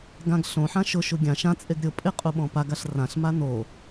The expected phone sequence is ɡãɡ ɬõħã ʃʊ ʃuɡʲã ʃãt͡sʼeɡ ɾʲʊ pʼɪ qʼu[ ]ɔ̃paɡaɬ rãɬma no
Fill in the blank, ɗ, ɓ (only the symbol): ɓ